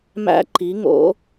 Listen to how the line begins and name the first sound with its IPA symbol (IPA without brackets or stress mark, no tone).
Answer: m